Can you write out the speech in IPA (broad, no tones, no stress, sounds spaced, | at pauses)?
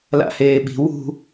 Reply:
l a̰ h eː ɓ i̤ w ṳ